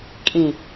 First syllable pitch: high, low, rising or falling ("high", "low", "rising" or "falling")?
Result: low